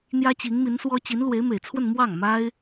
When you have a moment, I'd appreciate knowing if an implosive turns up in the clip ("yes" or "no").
no